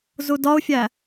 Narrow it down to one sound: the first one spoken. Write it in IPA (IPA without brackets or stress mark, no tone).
z